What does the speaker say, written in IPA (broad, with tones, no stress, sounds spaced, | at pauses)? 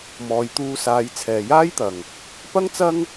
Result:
m ɔː˨ j t̪ uː˧ s aː˨˧ j t͡sʰ ɛː˨ j aː˥ j t̪ ɐ˨ ŋ | p ɐ˥ ŋ t͡s ɐ˥ ŋ